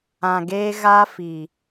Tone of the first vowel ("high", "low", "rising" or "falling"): low